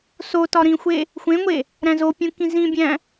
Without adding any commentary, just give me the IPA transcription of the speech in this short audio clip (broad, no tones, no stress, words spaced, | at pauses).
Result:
so tɒɾĩxʷe | xʷẽŋʷe | ɾæ̃zopʲũ kĩzĩbʲæ̃